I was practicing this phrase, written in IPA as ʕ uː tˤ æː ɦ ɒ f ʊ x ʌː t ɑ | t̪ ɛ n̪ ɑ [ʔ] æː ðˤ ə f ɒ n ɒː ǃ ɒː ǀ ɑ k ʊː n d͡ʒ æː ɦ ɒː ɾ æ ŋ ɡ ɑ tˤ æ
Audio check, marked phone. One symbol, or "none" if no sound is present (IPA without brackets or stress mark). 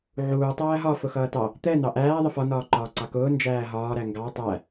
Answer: ʔ